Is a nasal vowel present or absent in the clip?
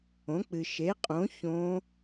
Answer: present